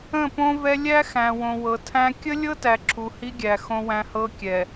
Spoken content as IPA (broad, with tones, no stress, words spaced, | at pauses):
ə̃˦˨põ˦vɛ˦ lʲæ˦xæ̃˨ wõ˨wɤ˨tʰæ̃˦ kʲə˦lʲɤ˦tæ˨ ǁʰu˨hi˦ɡʲæ˨ xõ˦wæ̃˦hɤ˦kʲɛ˨